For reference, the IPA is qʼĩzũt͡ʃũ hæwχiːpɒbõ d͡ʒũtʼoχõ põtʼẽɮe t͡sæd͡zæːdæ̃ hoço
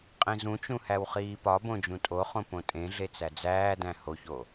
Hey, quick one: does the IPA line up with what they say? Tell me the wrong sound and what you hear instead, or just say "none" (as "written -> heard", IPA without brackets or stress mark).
none